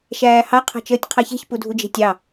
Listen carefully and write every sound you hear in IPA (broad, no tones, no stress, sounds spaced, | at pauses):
ʃ æː h ɑ qʰ ɑ̤ t͡ʃ əː tʲ qʰ ɑ ç e̤ ç p u dʱ u d͡ʒ e̤ tʲ ɑ